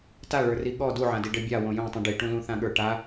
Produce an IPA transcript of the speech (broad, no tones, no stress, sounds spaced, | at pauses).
t a ɭ ə˞ r i ɠ ɔ d u ʕ ã d i ɖ ɘ bʲ a w õ j õ tˤ ĩ ɖ i ʈ ũ l ũ θ ã ɠ ə˞ ʈ a